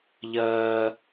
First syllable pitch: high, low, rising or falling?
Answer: high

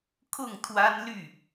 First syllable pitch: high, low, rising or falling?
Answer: falling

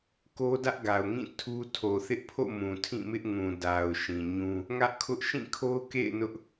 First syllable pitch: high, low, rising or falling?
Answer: high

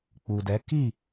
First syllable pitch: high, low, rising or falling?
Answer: low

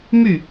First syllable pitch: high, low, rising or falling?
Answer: falling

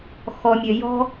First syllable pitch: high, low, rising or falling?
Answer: low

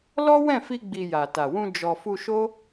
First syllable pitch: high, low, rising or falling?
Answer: high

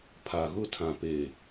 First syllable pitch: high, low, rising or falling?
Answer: low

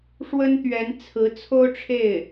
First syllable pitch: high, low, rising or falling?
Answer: high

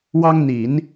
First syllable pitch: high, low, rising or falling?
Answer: high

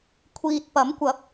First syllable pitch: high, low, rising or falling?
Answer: low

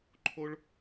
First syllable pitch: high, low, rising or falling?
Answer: high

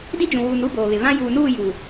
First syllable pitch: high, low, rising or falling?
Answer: high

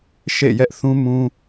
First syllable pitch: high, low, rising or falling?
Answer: falling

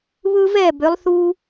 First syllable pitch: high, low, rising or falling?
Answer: high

